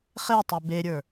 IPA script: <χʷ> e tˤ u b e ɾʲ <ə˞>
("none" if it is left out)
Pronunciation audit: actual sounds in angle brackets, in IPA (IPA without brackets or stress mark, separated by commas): χ, ə˞